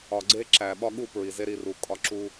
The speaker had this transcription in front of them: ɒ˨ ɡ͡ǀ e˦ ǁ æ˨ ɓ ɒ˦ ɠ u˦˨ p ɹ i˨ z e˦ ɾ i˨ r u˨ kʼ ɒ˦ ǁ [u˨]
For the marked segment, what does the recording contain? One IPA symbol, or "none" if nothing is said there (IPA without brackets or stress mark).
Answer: u˦